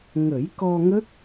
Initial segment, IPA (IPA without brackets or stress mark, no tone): ŋ